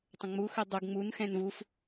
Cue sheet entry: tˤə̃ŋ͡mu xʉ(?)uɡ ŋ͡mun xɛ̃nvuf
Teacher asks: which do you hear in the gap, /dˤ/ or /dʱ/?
dˤ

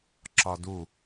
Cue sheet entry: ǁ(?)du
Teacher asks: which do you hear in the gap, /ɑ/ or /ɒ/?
ɒ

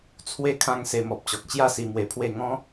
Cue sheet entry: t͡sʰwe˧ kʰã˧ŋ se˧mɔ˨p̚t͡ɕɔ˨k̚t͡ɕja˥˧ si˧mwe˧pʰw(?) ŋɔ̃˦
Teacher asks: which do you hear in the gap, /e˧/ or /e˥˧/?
e˥˧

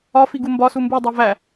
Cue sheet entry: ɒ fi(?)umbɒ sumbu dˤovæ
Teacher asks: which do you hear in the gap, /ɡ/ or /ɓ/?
ɡ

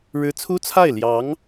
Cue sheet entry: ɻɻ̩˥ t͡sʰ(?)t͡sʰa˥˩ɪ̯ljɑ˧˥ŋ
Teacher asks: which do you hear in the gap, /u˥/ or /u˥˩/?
u˥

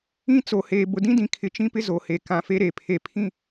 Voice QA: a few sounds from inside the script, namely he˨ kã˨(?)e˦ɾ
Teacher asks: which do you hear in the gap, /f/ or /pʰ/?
f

